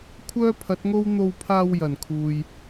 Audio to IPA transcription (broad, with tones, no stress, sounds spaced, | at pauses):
kʷʰ œː˥ pʰ ɐ˨˥ t̚ ŋ o˥ w n̪ o˧ w pʰ aː˧ w j ɐ˨˩ n kʰ uː˨ j